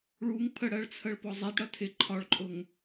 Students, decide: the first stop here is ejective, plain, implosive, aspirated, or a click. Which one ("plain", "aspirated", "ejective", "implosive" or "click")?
aspirated